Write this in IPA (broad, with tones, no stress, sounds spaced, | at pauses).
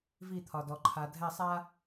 v i˦˨ t̪ʰ ɒ˨ d ɔ˨ ǃʰ a˨ dʱ ɛ˦˨ sˤ a˦